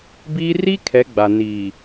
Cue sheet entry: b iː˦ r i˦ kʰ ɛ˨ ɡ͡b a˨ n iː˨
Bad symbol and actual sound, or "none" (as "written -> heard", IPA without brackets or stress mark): ɛ˨ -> ɛ˨˦